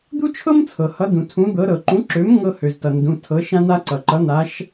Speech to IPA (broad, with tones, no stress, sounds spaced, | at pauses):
d̪ u˥ t͡ʃʰ ɤ˥ m t͡sʰ ɤ˩ h ʌ˨˥ d ũ˩ tʰ ũ˨˥ d̪ ɤ˨˥ ɾ ɤ˩ ǃ ũ˨˥ ǁ ø˨˥ m ŋ ɤ˥ h ø˩ z t ʌ˩ n d ũ˩˧˩ tʰ ɤ˨˥ ʃ ã˥ n̪ a˥ ǀ ʌ˩ ǃ ʌ˨˥ n̪ a˨˥ ʃ